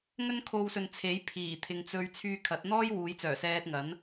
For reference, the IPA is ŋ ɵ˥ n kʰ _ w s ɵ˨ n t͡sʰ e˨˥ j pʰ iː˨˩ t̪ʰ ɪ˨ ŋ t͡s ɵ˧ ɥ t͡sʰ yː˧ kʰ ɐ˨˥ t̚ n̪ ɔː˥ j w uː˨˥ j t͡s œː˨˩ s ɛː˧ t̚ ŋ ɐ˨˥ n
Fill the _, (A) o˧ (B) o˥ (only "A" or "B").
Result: A